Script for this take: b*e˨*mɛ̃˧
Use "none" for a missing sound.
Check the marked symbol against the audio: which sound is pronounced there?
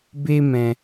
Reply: e˦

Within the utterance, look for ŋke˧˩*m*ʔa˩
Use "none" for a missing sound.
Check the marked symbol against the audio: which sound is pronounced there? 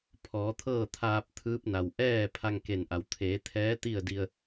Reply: n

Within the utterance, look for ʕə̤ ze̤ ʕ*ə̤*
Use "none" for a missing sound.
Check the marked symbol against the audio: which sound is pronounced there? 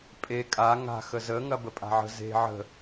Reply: ə̤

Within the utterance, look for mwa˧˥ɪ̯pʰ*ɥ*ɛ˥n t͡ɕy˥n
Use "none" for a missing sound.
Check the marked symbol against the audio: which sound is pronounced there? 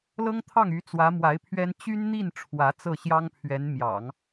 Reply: ɥ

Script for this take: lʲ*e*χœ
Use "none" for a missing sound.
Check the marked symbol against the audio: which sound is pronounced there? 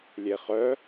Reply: e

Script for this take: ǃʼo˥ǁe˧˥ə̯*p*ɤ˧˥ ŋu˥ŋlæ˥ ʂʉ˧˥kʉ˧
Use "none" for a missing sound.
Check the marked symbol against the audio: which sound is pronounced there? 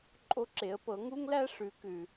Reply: p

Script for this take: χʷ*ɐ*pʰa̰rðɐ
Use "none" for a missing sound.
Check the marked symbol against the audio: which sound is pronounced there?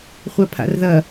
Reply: a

